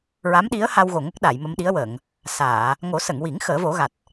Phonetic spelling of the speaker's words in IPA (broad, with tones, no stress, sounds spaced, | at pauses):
ɹ a˧˥ m ɗ i˧˥ ə̯ h a˧ w ɣ o˨˩ ŋ ə˦˥ k̚ ɗ a˨˩˨ j m ə˧ m ɗ i˧˥ ə̯ w əː˨˩˨ ŋ | s aː˨˩˨ | ŋ o˨˩˦ s ə˨˩˨ ŋ w i˨˩˦ ŋ x əː˨˩˦ v o˨˩˦ ɣ a˨˩ t̚